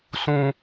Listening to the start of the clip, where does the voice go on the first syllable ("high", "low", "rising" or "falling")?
low